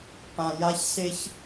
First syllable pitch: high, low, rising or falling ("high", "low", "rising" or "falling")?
low